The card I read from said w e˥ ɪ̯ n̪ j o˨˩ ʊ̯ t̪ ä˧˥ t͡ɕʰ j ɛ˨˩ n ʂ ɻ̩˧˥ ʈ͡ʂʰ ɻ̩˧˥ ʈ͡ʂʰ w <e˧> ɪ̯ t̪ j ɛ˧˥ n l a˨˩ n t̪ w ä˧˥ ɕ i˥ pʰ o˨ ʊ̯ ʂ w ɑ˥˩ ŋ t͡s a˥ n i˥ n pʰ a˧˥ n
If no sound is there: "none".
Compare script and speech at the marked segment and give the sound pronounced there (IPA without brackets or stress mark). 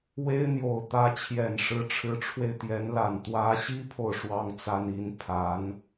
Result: e˧